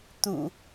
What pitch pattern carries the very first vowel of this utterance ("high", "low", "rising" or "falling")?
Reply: low